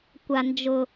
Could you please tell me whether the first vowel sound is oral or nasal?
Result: oral